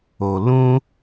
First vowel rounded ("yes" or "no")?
yes